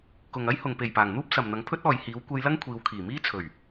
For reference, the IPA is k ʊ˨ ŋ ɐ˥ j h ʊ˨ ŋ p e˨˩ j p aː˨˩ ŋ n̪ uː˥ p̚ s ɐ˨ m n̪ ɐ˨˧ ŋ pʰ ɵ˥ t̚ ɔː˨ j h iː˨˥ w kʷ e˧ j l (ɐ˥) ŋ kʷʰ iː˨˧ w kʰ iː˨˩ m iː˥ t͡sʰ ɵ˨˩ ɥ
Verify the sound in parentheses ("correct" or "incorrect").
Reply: correct